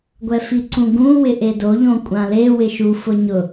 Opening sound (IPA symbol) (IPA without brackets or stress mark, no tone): ɡʷ